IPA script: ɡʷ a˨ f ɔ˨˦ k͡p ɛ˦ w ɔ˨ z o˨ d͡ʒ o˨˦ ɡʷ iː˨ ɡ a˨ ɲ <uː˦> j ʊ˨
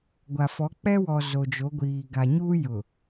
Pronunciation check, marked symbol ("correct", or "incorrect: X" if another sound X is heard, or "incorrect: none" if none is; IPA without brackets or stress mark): correct